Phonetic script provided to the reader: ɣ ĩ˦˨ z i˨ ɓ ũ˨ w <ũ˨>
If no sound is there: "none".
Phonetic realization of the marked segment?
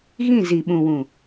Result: ũ˨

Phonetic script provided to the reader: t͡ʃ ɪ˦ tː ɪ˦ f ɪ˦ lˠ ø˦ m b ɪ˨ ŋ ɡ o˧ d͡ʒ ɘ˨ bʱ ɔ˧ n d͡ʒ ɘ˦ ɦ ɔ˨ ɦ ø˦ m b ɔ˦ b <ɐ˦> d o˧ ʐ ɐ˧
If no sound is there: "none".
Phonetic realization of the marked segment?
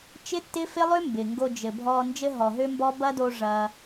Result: ɐ˦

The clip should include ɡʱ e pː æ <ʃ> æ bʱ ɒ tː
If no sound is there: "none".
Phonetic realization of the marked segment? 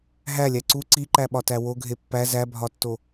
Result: z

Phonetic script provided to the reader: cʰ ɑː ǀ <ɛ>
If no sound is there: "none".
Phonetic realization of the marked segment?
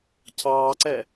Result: ɛ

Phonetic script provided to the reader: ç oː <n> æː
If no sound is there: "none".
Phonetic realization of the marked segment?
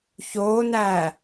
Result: n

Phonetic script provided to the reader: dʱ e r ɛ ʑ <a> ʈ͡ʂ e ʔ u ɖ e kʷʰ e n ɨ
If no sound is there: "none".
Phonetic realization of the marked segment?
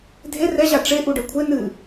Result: a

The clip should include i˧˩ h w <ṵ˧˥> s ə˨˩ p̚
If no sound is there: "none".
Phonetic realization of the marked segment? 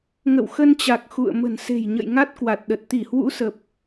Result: ṵ˧˥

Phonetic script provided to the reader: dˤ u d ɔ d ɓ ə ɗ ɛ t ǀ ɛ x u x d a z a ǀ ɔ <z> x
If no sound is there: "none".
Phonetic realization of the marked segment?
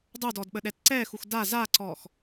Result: none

